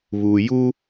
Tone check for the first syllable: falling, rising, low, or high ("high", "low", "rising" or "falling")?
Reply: low